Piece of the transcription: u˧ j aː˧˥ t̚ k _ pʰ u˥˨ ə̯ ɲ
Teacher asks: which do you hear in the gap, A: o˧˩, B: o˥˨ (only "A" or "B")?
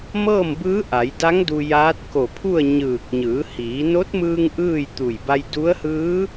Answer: A